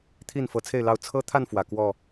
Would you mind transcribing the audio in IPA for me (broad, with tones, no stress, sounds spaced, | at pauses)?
t̪ʰ i˥˨ n f ɤ˨˦ t͡sʰ e˥˨ ɪ̯ l ɑ˥˨ ʊ̯ t͡sʰ ɤ˦ t̪ʰ a˥˨ n f w ä˨˩ k w ɔ˥˨